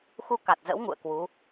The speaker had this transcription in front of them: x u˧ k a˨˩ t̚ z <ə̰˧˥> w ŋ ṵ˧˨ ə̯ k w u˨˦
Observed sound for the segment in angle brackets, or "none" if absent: ə̰˧˥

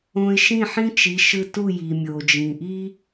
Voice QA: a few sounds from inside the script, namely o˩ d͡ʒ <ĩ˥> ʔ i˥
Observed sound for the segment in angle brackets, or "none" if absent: ĩ˩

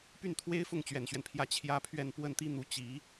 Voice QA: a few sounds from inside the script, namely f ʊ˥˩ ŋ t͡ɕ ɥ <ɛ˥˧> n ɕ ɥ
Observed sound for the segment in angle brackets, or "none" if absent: ɛ˨˩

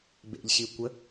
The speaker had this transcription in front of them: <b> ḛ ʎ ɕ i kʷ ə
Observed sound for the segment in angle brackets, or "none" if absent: b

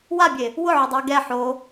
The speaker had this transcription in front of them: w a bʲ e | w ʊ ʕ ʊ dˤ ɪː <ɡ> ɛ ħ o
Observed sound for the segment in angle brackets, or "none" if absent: ɡ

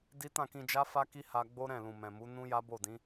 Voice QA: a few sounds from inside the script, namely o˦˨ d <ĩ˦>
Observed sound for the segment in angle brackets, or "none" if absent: ĩ˨˦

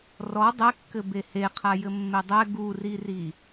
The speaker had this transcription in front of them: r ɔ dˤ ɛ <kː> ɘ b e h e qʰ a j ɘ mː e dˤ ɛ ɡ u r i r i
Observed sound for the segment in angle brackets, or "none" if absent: kː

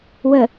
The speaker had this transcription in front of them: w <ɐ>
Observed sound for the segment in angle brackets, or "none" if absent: ə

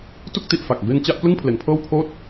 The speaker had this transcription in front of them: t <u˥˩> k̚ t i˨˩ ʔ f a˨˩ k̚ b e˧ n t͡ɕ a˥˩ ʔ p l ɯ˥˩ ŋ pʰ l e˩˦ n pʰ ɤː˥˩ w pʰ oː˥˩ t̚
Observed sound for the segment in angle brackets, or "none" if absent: u˥˩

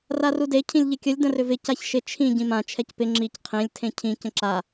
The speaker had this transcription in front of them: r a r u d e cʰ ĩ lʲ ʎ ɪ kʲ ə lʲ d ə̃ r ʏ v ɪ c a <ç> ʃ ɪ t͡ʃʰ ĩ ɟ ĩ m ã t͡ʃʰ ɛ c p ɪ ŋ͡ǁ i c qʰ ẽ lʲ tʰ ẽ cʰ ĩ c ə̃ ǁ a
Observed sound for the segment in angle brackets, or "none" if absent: ç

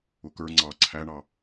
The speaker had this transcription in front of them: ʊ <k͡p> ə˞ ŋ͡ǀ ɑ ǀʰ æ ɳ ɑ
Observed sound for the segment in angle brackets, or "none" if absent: k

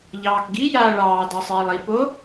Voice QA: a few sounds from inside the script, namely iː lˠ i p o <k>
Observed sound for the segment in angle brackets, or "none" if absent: none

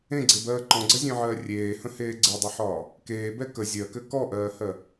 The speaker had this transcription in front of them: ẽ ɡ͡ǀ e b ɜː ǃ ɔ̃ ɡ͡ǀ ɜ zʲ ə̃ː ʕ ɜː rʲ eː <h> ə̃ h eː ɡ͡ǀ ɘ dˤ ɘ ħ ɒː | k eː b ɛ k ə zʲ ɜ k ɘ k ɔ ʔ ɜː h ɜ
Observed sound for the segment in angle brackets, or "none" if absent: h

